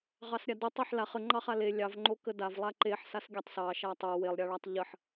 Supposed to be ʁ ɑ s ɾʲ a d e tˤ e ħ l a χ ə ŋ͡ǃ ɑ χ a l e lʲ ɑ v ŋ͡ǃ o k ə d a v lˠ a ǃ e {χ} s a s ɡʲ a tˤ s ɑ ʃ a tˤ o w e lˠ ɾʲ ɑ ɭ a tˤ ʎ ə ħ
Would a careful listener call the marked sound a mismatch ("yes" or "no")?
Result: yes